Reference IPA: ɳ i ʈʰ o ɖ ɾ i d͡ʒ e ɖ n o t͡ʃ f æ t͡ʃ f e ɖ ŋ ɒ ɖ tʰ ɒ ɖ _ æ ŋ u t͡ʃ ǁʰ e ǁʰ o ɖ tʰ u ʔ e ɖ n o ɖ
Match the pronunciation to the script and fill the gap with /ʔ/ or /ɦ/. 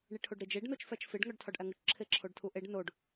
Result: ʔ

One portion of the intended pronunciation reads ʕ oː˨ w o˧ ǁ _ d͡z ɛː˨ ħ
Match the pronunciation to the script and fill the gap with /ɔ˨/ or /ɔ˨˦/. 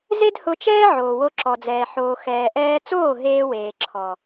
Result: ɔ˨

